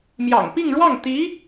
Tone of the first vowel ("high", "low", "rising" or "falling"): low